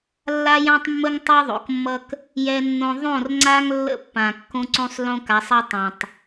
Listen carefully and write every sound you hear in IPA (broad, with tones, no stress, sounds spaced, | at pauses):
lː a˦ j ã˦ tˤ mː ə˦ ŋ tˤ a˦ ðˤ o̰˨ k mː ʌ˦ k | j ɛ˦ nː õ˦ ðˤ õ˦˨ r ŋ͡ǀ a˦ ŋ lː ə̰˦˨ pː ã˨ kː õ˦ ǀ õ˦ sˤ l õ˦ k a˨˦ sˤ ʌ˦ tˤ ã˨ tˤ